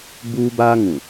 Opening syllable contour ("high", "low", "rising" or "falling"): high